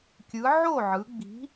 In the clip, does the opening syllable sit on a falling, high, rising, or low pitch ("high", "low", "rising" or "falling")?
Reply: rising